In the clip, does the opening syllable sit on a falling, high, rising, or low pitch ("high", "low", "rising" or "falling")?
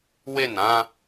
falling